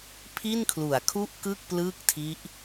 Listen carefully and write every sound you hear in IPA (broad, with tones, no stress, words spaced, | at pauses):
pʰi˥˩nkʰlu˩˦a̯kʰu˥˩ʔkɯ˥˩k̚ plɯː˥˩k̚tʰi˦˥ʔ